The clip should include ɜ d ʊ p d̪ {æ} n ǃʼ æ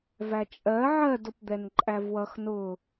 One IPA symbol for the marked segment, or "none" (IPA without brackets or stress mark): ɛ